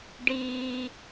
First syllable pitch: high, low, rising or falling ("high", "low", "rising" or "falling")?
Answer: high